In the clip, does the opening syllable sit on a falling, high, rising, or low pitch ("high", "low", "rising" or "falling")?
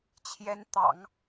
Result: rising